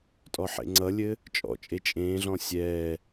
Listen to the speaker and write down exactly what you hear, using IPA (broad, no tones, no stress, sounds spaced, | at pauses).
tʼ ɔ ħ ḛ ŋ͡ǀ ʌ lʲ ɘ | t͡ʃʼ ɔ̰ t͡ʃʼ e t͡ʃʼ ẽː ɮ ɔ̃ sʲ ɛː